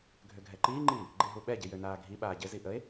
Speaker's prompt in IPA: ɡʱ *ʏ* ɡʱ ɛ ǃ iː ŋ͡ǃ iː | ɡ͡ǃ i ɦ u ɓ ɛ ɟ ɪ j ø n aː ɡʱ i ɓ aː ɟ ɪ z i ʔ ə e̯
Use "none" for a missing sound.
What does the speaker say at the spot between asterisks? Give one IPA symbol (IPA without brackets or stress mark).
ʏ